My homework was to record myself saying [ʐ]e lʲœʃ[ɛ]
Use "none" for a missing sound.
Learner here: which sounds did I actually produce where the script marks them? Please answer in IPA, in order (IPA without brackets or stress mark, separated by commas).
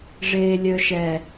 ʐ, ɛ